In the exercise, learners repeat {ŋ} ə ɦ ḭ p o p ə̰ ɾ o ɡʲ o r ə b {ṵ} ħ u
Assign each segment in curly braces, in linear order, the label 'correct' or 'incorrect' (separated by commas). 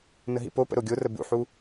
incorrect, correct